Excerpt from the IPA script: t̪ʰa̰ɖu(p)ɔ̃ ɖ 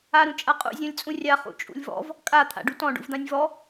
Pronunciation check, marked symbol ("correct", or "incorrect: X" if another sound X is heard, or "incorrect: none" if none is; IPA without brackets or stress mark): incorrect: t